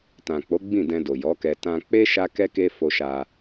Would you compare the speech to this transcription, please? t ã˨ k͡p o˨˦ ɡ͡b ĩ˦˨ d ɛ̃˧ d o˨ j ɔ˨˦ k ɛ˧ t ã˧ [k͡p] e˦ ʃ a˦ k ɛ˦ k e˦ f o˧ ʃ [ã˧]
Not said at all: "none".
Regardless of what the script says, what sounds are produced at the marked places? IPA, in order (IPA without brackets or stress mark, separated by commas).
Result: k͡p, a˧